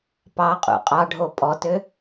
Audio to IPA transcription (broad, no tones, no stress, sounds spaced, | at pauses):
p ɑ qʼ ṵ qʼ ɑ ɖʱ o pʼ ɔ t ø